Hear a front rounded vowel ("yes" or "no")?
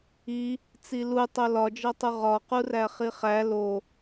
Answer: no